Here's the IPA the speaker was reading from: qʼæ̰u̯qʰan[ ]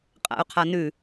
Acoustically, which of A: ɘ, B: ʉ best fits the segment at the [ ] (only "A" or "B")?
B